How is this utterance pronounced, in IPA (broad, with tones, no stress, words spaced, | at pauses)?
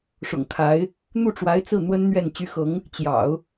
ʂʊ̰˨˩ŋkʰa˧˥ɪ̯ | n̪u˥˩ ʈ͡ʂwa˧˥ɪ̯t͡sɹ̩˥˩n̪wə˥n n̪ɥɛ˥˩n t͡ɕy˧˥xɤ˧˥ŋ | t͡ɕjɑ̰˨˩˦ʊ̯